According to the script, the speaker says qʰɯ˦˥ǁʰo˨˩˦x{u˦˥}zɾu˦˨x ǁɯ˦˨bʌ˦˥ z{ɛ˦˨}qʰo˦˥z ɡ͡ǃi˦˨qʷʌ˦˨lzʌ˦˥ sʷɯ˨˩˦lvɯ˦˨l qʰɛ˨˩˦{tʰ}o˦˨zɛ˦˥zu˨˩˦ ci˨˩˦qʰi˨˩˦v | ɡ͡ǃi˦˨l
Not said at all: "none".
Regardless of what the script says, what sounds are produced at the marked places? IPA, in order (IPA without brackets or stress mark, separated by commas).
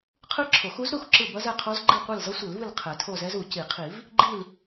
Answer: u˦˥, ɛ˦˨, tʰ